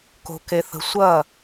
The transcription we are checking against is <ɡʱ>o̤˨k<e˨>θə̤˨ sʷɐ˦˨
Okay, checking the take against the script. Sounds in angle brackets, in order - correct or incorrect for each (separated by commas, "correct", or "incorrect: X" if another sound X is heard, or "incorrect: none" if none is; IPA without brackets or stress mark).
incorrect: k, correct